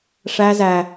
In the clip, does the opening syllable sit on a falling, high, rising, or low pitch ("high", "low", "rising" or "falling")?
high